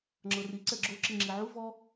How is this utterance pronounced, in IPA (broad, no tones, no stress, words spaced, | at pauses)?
ŋ͡ǁɤri ǀɛɡ͡ǁo ǁiŋ͡ǁiʕu vɔ